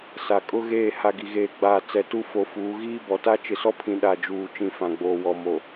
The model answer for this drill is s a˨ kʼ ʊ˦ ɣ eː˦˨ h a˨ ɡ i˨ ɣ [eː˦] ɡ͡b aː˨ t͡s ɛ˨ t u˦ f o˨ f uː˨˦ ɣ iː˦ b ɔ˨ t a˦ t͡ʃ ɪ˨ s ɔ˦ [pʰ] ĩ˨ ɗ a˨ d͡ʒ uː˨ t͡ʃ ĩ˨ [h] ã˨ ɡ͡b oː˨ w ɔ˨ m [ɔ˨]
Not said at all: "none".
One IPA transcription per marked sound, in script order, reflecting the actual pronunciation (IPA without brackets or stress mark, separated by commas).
eː˨, pʰ, f, o˨